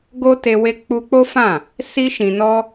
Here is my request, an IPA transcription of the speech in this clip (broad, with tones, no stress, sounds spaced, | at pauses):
ɡ o˦ t e˧ w e˦ k͡p u˧ k͡p o˦ f ã˦˨ | s i˦ ʃ ĩ˧ n ɔ˦